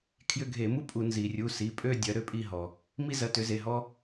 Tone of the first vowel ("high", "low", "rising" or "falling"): falling